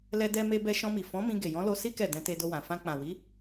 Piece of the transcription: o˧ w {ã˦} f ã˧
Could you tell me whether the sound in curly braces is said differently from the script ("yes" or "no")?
yes